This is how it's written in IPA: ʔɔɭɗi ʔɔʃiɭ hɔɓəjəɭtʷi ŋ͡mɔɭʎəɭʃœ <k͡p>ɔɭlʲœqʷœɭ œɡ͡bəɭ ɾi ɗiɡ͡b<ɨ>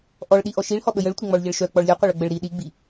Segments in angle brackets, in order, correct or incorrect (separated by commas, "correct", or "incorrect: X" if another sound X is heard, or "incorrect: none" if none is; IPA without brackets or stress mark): correct, incorrect: i